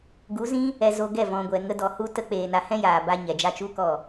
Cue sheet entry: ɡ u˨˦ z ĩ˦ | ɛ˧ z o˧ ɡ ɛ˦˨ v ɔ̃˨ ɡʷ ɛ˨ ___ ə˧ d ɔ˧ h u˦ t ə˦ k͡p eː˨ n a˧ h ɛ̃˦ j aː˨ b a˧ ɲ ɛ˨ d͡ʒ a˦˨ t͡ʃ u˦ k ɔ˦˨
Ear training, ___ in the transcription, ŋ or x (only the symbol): ŋ